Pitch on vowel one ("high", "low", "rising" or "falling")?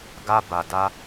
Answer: high